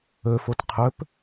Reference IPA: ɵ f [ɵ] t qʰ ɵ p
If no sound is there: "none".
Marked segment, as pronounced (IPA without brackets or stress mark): o